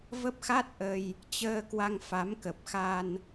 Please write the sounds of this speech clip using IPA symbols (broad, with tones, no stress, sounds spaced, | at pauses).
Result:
v ə˦˥ p̚ x a˦˥ t̚ ʔ ə˧ j | t͡ɕ əː˧ k w a˧ ŋ f a˨˦ m k ə˨˩ p̚ x a˧ n